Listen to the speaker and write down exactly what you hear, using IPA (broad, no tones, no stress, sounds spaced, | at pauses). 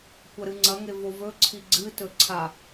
kʷ ɐ ɾ ɨ ŋ͡ǀ ɐ ŋ e v o v ɵ ǀʰ i ɡ͡ǀ ɨ t ɵ ǀʰ a